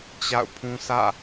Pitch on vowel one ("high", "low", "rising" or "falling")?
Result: falling